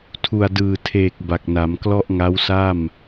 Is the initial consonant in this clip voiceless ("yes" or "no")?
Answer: yes